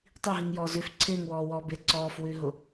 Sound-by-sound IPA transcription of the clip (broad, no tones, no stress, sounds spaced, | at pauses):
tˤ i ɦ i ŋ j ɔː z ʉ f ǀʰ ɪː ŋ w ɔː w ɔː b ɪ ǀ ɔː f w ʉ ɦ ʊ